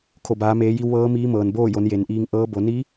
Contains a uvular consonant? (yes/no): no